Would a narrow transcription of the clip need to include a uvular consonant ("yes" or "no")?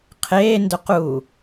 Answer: yes